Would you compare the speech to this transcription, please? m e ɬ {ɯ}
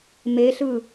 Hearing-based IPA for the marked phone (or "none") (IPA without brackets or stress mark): ɯ